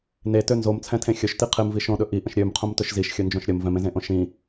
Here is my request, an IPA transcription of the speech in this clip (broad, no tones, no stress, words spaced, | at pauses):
netø nzomt͡sʰɛ̃tʰẽ xʲɵʃti qʰemvi ʃõɗɵ ʔiʔə̃ʃ ɾʲømqʰõmtɵʃ ziʃxʲɵnd͡ʒõʃ ɾʲəm vɛ̃mẽzẽʔõ ʃĩ